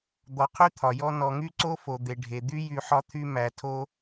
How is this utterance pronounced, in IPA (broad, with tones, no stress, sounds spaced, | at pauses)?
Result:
d̪ ɔ˨ qʰ y˥ t̪ʰ ɒ˩ j ɔ˦ n ɔ˨ ŋ y˥ ǀ o˥ f o˩ d̪ e˩ ɖʱ e˩ d̪ y˥ j y˨ ħ ɒ˥ t̪ʰ y˥ m æ˩ tʰ o˦